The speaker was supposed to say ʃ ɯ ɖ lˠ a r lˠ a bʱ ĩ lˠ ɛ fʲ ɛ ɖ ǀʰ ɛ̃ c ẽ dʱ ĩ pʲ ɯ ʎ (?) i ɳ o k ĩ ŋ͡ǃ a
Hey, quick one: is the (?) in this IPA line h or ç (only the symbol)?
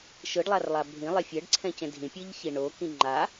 ç